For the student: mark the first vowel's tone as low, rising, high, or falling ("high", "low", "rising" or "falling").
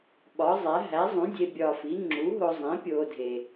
rising